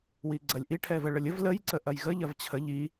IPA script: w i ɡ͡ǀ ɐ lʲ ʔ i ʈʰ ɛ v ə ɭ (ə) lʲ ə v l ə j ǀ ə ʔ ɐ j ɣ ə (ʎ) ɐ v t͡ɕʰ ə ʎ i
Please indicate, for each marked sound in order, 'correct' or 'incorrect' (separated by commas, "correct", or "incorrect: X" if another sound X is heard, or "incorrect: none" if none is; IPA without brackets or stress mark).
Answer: correct, correct